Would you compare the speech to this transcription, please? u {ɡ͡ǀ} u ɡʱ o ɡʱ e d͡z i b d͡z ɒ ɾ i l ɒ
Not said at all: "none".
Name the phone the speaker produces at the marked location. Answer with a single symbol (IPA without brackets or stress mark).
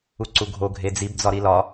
ǀ